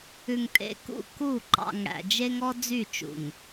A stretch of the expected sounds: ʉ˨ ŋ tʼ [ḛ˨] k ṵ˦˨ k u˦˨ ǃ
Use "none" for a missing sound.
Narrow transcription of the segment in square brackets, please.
ḛ˨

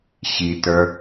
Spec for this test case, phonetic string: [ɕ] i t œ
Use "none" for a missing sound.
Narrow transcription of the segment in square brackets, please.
ɕ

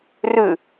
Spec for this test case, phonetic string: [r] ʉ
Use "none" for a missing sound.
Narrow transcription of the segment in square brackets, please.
r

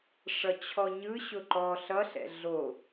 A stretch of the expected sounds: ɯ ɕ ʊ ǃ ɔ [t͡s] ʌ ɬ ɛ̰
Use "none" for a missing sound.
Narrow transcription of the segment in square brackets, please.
ɬ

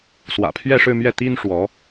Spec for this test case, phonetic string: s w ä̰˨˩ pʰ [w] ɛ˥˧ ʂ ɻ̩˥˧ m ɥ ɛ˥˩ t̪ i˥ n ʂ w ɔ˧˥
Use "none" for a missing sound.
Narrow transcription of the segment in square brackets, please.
ɥ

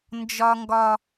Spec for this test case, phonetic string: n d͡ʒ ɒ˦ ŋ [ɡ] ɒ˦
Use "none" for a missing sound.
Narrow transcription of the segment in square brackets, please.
ɡ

